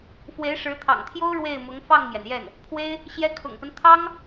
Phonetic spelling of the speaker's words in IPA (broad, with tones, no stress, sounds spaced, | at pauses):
f w e˧˥ ɪ̯ ʂ ɻ̩˧˥ t̪ʰ ɑ̰˨˩ ŋ t̪ʰ j o˥ ʊ̯ ɻ w e˥˩ ɪ̯ m ʊ˧˥ ŋ f ɑ˥˩ ŋ m j ɛ˩ n j ɛ˥˩ n | pʰ w e˥ ɪ̯ | ɕ j ɛ˥ kʰ ʊ̰˨˩ ŋ p ə˦ n t̪ʰ ɑ˥ ŋ